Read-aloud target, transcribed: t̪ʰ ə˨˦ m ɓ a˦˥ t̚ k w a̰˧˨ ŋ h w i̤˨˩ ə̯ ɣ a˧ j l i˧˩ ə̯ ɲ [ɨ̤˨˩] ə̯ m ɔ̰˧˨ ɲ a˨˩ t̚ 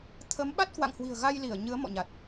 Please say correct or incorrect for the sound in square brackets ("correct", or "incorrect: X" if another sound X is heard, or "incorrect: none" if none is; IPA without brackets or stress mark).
incorrect: ɨ˨˦